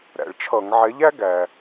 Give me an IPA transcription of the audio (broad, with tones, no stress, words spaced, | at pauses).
ɾæ̰˩ɭt͡ʃʰʌ˧˩˧ŋ ʕɛ˨˥ʎæ˦˥ ɡæ˩